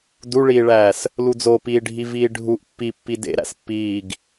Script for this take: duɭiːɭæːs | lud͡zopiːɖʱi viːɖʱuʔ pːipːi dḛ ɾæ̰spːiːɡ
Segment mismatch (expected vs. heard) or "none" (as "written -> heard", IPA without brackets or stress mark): none